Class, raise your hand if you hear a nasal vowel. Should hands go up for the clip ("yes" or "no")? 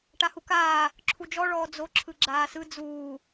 no